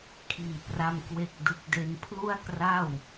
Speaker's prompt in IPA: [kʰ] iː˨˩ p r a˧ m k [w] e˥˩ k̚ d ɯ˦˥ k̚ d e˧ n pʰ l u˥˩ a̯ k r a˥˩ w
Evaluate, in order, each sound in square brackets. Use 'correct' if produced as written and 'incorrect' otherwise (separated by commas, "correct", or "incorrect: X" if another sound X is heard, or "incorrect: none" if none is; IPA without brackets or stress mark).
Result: correct, correct